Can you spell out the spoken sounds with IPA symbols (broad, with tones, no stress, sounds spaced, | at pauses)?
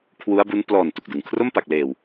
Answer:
kʰ w u˦˥ a̯ b u˦˥ n p l ɔː˨˩ n t u˨˩ k̚ d ɯ˨˩ ŋ kʰ r o˥˩ m p a˨˩ k̚ l eː˨˩ w